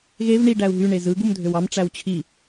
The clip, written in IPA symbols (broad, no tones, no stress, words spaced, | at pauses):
ɣev ɳi ɖæu̯ɦy ɳezɯ ɡumdʱøwɑm ʈ͡ʂæwt͡ɕʰi